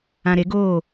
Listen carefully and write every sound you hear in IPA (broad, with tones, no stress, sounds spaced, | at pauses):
ã˨ ɾ e˨˦ ɡ oː˦˨